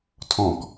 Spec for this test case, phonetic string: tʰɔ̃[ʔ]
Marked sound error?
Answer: yes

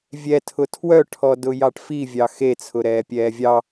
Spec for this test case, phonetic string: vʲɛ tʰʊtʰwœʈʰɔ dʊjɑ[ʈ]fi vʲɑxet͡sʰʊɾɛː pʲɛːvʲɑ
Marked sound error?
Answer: no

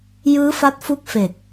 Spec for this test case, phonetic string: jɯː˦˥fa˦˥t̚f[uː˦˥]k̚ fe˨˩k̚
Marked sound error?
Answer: yes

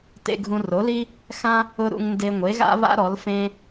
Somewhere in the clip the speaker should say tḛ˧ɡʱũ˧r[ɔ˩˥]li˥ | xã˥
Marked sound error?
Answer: yes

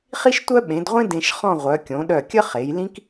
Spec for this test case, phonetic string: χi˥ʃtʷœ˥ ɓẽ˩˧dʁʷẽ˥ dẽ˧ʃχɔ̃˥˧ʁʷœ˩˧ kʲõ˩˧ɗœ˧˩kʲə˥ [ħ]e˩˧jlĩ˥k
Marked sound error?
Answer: yes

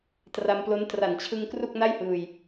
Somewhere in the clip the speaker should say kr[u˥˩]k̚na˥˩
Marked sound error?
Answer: no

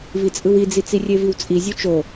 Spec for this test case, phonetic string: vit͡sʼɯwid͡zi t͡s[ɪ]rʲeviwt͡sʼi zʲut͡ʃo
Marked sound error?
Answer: yes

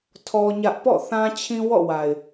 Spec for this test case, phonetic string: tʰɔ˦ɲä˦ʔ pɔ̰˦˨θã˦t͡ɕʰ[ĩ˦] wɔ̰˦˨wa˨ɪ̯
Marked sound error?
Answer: no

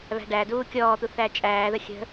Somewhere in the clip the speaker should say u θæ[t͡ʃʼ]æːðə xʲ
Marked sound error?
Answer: no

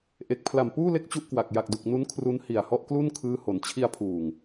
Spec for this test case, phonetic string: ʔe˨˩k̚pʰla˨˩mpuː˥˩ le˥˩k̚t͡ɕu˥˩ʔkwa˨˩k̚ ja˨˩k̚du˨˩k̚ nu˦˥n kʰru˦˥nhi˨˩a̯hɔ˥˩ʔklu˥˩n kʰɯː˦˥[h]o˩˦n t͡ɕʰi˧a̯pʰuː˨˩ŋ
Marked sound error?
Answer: no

